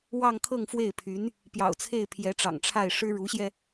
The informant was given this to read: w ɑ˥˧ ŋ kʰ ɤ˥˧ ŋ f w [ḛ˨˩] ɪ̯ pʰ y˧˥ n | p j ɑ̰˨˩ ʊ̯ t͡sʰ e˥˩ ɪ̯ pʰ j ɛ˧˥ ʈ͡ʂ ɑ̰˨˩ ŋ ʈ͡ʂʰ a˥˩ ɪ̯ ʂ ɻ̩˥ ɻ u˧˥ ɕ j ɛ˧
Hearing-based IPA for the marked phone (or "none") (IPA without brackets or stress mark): e˥˩